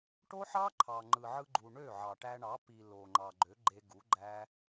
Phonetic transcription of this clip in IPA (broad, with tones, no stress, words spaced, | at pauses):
ʈo˦ħɑ˦ ǃʰɑ˨ŋ͡ǃɯ˨ʕɯ˧ɡ͡ǃu˨ ɳø˦˨ʕɑ˨ʈæ˧ɳɑ˨˦ pi˨ lo˨ŋ͡ǃɑ˨ ɡ͡ǃø˨˦ɡ͡ǃe˧ɡu˨˦ɡ͡ǃæ˦